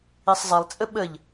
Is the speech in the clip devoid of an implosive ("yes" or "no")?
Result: no